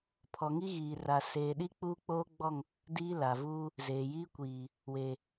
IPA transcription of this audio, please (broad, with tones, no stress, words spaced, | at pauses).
pʰɔ˨ŋi˦ɣiː˨ ra˨seː˨ɗi˦ k͡puː˦k͡poː˦ɡ͡bɔ˦˨ŋ | diː˦la˨vuː˦ | zeː˨jiː˦kʷiː˨ | we˨